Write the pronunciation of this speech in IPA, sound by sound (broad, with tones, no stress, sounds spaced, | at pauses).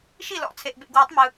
ʃ i˥˨ l ɔ̰˨˩˦ t͡sʰ e˨ ʔ b ḛ˨ ɡ w ɯ˨˩˦ tˤ m ɯ˨